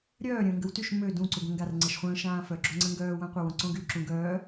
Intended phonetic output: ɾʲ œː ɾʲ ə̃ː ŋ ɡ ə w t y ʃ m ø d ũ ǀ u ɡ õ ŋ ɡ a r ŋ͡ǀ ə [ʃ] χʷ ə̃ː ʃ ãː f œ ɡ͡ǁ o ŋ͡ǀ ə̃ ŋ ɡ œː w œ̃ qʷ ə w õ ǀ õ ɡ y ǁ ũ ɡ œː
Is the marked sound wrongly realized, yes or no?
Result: no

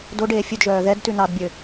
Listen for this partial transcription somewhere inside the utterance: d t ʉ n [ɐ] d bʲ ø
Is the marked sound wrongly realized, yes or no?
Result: yes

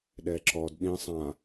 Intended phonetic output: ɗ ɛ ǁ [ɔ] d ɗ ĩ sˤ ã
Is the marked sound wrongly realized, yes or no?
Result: no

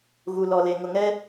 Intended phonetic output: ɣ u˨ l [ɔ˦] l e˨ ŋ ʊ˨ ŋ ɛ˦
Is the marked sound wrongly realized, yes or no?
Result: yes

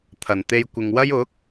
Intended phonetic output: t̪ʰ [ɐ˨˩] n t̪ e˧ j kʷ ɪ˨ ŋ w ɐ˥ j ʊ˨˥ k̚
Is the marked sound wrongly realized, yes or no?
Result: no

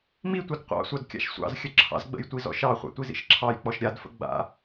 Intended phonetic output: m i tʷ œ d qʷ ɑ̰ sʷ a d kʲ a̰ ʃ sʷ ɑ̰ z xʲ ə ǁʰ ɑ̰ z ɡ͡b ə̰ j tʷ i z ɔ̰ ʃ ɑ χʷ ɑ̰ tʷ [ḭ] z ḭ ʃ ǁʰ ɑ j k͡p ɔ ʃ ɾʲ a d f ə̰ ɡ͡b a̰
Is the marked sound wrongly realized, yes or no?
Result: yes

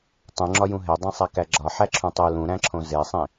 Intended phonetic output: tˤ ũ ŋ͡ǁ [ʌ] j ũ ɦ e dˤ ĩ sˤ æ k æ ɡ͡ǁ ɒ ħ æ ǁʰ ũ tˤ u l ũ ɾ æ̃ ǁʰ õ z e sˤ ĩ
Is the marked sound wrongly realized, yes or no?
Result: yes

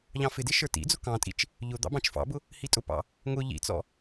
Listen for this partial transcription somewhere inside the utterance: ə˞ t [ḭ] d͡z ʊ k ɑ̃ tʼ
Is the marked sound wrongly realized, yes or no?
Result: no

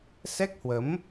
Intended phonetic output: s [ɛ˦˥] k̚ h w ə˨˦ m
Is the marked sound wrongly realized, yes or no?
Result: no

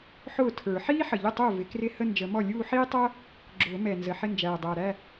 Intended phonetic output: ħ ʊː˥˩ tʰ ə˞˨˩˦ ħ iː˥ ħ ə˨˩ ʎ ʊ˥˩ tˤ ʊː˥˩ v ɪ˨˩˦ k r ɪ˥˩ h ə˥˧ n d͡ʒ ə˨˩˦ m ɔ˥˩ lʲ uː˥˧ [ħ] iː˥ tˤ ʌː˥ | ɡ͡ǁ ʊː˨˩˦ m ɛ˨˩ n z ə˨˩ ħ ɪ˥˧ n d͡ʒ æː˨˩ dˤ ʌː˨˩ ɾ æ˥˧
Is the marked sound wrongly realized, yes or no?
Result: no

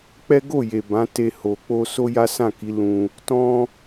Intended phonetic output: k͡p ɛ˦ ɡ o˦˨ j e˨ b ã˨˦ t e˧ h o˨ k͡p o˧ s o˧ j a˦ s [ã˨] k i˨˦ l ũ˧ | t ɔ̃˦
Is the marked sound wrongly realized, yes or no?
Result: yes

